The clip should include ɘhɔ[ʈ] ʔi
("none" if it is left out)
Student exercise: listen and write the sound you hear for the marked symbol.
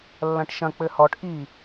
ʈ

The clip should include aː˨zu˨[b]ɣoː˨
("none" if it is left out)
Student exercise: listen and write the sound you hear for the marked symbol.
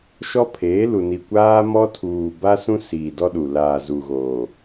none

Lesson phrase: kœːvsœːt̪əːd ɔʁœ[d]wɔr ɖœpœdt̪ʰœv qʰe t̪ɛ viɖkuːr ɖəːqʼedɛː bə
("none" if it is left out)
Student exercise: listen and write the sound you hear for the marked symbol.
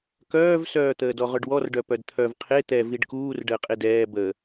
ɖ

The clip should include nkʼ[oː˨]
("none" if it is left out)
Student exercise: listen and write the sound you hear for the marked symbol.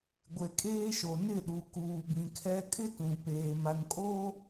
oː˦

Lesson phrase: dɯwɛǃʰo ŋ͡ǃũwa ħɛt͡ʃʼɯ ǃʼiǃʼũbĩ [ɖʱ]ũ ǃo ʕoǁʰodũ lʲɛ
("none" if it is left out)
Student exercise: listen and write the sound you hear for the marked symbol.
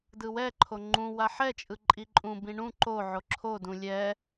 ɳ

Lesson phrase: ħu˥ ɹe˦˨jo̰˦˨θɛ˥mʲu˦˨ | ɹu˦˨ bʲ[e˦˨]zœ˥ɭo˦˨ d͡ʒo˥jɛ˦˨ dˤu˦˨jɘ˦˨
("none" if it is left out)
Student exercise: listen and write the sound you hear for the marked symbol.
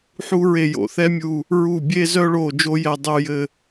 e˥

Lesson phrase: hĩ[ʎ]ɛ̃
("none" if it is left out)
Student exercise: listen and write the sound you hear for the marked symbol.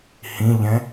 ʎ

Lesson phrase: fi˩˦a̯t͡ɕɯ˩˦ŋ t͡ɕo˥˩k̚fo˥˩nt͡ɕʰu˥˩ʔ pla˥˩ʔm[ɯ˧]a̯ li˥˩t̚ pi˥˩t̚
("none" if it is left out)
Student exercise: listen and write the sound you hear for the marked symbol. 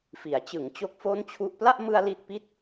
ɯ˧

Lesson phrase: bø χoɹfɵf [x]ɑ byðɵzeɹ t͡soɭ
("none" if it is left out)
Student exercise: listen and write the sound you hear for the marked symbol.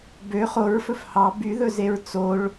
h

